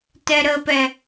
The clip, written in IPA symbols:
t ɛ ɾ ə p ɛ

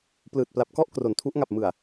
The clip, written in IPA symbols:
p l ɯː˨˩ t̚ p l a˨˩ p̚ k ɔ˥˩ ʔ k r o˩˦ n tʰ u˦˥ ʔ ŋ a˨˩ p̚ m ɯ˨˩ a̯

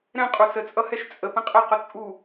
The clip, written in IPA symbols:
ɾ ɛ̃ qʼ u s ə t͡sʼ ʌ h ɛ ʃ t͡sʼ ə p ə̃ qʼ ɛ q ʊ t͡sʼ u

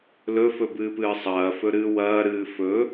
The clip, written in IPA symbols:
l ɵ f ɵ b ɨː p ɨː sˤ ɐː f ɵ ɾ ɨː w ɐː ɾ ɨː f ɵ

